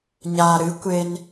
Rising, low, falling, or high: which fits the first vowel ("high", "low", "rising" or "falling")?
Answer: low